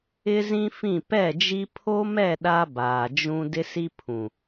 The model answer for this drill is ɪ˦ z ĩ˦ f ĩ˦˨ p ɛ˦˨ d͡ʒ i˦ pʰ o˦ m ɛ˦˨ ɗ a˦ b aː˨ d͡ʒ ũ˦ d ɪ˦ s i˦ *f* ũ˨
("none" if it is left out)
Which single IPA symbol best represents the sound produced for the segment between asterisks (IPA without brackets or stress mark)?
pʰ